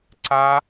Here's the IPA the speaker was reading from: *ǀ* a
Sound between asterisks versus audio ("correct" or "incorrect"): correct